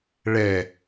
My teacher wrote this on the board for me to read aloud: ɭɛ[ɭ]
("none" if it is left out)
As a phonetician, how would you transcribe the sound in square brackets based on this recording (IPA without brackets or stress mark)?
none